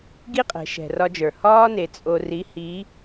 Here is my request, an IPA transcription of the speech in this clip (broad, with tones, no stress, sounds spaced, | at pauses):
ɡ i˥ qʼ ɛ̤˩˧ ʃ ɛ̤˩ r ɒ˧ d͡ʒ ə˞˩ h ɒː˥ n e˩˧ t͡sʼ o˧ r i˧˥ h i˧˥